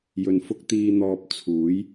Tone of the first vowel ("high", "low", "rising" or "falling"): low